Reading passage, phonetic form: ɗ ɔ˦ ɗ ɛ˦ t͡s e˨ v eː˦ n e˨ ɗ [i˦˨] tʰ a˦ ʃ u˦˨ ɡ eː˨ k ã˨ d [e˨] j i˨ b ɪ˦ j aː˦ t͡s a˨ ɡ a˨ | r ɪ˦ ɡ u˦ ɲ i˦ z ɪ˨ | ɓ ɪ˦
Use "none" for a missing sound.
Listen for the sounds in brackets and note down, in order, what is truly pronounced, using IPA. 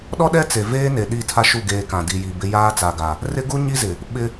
i˦˨, i˨

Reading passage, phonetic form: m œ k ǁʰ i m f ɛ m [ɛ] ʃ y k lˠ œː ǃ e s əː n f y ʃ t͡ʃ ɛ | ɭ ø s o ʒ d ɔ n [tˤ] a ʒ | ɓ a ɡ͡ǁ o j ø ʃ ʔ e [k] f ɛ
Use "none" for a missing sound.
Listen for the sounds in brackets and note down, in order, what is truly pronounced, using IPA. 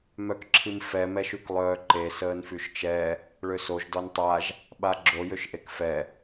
ɛ, tˤ, k

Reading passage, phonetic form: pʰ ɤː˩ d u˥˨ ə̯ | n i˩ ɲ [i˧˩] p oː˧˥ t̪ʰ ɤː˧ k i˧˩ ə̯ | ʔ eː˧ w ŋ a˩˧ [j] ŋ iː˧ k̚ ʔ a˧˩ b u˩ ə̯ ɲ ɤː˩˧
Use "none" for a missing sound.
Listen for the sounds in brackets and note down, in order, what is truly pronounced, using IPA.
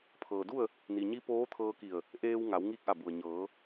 i˧˥, w

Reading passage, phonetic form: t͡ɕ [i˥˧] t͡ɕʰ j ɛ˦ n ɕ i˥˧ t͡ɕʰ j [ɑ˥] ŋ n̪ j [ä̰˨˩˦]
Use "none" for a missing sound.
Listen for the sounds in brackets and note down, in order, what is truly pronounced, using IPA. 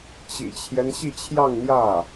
ḭ˨˩, ɑ˥˧, ä˥˩

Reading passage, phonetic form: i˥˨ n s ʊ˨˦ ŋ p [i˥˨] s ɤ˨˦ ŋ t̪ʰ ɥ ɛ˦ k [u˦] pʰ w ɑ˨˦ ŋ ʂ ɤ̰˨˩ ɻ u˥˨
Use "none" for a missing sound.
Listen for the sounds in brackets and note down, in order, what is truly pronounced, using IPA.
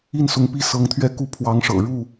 i˦, u˦

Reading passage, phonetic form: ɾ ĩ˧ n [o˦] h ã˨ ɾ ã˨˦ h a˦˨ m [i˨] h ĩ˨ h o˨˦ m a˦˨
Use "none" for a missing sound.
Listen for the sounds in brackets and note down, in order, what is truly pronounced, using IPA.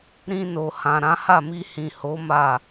o˨, i˧

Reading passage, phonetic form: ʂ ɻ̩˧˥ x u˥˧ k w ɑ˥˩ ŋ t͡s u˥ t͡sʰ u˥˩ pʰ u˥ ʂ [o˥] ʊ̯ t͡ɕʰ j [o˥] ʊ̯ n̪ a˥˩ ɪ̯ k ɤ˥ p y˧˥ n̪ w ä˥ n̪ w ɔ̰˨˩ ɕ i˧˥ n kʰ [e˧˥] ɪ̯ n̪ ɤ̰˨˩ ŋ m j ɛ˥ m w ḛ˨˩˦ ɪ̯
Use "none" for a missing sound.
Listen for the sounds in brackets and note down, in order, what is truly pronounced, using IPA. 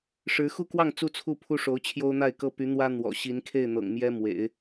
o˧˥, o˥, e˥˩

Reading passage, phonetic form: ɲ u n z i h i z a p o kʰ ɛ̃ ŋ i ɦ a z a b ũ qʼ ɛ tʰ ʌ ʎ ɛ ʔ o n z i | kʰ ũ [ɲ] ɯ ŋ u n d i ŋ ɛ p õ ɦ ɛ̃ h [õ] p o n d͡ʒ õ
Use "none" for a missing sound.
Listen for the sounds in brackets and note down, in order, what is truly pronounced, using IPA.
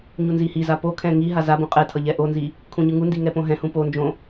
ɲ, ũ

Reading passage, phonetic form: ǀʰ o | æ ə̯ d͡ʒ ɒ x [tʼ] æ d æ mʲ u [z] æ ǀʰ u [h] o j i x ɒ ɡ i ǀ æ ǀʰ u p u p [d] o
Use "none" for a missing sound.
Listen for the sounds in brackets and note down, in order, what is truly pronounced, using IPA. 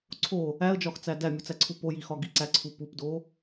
t͡s, t͡s, p, d

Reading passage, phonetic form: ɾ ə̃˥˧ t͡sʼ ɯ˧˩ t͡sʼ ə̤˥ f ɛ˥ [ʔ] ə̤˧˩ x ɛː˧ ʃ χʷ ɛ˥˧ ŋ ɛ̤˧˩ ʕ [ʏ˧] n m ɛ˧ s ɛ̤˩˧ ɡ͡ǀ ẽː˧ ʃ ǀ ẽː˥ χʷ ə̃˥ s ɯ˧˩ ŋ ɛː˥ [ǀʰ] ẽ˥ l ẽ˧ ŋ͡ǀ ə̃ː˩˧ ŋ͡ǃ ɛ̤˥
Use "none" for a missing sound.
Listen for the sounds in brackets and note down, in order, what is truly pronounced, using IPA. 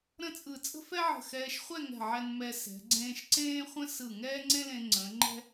ʕ, ɛ˧, ŋ͡ǀ

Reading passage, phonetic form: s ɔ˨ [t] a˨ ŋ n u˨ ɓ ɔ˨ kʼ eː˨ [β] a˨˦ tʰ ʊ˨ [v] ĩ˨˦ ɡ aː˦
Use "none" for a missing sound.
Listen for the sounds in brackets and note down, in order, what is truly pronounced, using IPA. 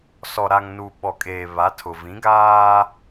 ɾ, β, v

